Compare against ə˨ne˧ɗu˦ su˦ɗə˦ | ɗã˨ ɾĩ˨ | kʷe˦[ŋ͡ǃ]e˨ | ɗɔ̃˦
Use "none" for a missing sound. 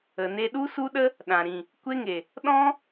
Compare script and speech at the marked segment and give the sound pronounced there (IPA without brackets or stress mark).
ŋ